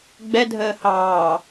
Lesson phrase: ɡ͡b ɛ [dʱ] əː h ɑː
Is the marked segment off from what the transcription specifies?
no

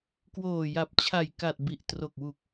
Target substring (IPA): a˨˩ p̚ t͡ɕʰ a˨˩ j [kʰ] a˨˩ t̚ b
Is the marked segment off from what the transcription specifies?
yes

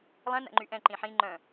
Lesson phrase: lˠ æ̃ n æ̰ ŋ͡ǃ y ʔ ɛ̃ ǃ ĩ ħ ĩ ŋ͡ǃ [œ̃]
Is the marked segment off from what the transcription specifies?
no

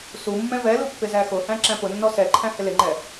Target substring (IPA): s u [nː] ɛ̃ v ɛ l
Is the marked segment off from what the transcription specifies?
yes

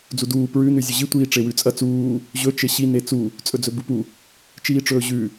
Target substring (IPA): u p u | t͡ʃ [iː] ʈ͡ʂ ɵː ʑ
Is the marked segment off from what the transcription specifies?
no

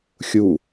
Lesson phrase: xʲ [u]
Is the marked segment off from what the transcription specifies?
no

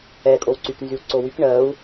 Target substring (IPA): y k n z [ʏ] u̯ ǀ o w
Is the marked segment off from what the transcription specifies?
yes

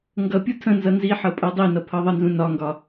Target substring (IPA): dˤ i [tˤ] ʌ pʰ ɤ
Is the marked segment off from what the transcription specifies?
yes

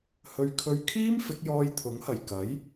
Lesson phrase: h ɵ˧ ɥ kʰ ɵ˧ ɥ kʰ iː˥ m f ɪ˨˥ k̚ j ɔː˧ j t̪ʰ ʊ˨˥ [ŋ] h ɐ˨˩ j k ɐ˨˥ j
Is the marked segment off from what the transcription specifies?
no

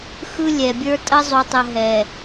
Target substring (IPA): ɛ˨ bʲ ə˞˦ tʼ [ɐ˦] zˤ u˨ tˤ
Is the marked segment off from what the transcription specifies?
no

